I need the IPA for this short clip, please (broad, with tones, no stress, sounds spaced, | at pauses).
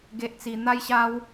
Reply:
ɡ e˦ ʔ t͡s i˧ n̪ a˦ j ɕ a˦ w